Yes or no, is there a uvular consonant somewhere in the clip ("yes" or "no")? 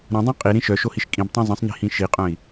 yes